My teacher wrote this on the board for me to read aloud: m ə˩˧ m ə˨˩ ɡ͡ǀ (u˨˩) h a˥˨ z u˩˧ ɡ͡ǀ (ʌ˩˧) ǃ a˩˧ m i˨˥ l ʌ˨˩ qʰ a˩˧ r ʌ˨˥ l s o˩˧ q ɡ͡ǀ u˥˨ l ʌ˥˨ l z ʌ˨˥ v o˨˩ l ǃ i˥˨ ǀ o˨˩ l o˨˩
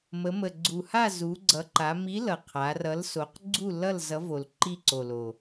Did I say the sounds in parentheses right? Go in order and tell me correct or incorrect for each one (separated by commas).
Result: correct, correct